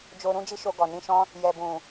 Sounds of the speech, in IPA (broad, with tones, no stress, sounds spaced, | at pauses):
d͡ʒ o˧ ɾ ũ˦ d͡ʒ i˦ ʃ o˧ ɡ ɔ˨ n ĩ˧ ʃ ɔ̃˦ | j ɛ˨ b ũ˨